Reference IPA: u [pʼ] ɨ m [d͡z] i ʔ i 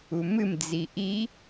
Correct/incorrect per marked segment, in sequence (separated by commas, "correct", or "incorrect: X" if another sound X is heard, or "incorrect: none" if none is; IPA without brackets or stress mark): incorrect: m, correct